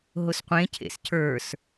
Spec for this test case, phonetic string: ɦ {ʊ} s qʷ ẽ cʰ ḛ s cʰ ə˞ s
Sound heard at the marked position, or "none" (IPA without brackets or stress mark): ʊ